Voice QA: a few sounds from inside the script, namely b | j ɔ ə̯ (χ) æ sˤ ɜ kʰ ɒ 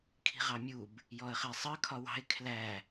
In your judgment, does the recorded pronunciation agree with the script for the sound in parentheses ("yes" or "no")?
yes